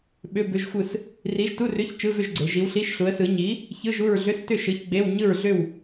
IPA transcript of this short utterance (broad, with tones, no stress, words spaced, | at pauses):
ɓʏ˧˥˧bʏ˧˥˧ʒxʷɯ˥˨s | ri˨˥ʒtu˧˥˧rʏ˧˥˧ç t͡ʃɯ˧˥˧vʏ˥˨ʒɡ͡ǀe˩˧ ʒi˨˥wɬi˧˥˧ʃɬu˨˥ə̯sɯ˨˥ ɲi˨˥ | çɯ˧˥˧ʒu˥˨ɹɮʏ˧˥˧stʏ˥˨ ʃɯ˨˥çɡ͡be˧˥˧w ɲɯ˥˨ɹɮʏ˥˨w